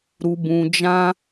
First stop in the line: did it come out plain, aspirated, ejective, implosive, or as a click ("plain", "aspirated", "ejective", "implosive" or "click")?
plain